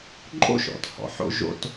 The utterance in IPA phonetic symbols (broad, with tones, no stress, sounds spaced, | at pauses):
ǃʼ o̰˦ ʃ ɔ̰˨ t h ɔ̰˨ ħ o̰˦ ʒ o̰˦ t